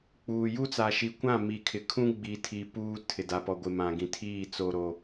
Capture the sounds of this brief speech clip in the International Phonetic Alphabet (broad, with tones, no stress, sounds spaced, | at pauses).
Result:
k͡p uː˨ j u˦ t͡s a˨ ʃ i˨ kʷ ã˦˨ m i˨ kʰ ɪ˨ kʰ ũ˦ ɡ͡b i˨ tʰ i˨ p uː˦ tʰ ɪ˨ d a˨ p ɔ˨ ɡʷ ɪ˨ m ã˨ ɡ ĩ˨ tʰ iː˦˨ t͡s o˨ ɾ o˨